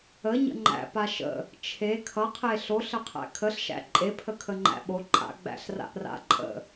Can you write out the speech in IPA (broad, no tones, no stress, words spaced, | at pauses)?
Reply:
əɲə̰ ŋ͡ǃæ̰pa ʃə̰ | t͡ʃʰe kʰʌqʰe ɬoɬəqʰæ̰ kʰəɬʃæ̰ ǃʼepʰəkʰəŋ͡ǃæ̰ ɓo ǃʼa̰ɡ͡bæ̰ɬra̰ʔra̰ ǃʼə̰